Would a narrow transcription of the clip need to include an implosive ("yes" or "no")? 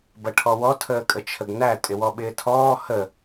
yes